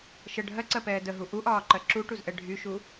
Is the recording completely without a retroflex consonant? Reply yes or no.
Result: no